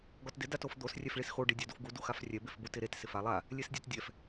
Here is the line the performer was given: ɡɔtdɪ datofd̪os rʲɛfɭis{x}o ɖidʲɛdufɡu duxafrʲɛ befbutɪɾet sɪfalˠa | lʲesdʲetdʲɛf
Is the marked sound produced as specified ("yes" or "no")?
yes